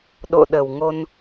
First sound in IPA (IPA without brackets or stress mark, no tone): ɗ